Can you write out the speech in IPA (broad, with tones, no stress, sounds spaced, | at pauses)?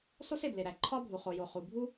s o˥ s e˩ b l e˩ ɾ æ˩ ǃʰ ɒ˥ bʱ u˩ χ o˩ j o˩ χ u˩ bʱ u˥